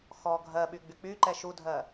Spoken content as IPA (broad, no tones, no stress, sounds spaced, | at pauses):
x ɔ ɡʱ ɜ ɓ y ɡ͡b y k͡p y ǃ ɛ ʃ u dʱ ɜ